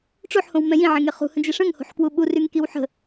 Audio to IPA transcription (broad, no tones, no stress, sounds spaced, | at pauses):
ʈ͡ʂ o ħ h õ w m ɛ̃ j ĩ ʕ ẽ ŋ e χ ṳ h ə̃ d͡ʒ e ʂ ə̃ ŋ h o̤ ħ k w u ɓ u r y ŋ k i w ħ ə̤